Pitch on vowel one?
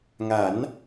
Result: rising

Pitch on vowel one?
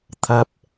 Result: low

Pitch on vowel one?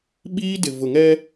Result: high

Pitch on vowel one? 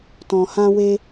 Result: low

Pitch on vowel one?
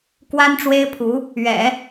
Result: high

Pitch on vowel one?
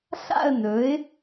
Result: falling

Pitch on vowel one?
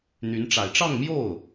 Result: rising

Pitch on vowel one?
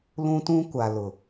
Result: high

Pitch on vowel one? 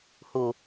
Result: low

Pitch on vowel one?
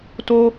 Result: high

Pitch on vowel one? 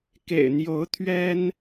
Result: low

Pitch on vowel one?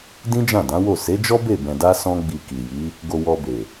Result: high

